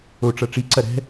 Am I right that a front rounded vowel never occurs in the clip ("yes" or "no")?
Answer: yes